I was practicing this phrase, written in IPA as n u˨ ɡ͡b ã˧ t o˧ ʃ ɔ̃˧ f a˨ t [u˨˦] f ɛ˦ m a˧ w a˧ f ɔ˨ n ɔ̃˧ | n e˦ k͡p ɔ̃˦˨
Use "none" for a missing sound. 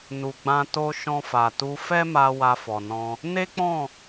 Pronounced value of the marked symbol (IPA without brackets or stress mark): u˧